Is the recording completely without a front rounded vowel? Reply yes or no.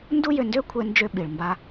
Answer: no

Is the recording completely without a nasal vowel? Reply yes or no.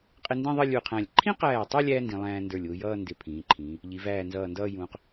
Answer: no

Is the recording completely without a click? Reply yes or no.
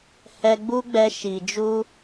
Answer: yes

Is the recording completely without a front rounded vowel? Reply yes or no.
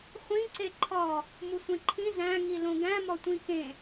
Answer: yes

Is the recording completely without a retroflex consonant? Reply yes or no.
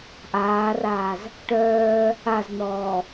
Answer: no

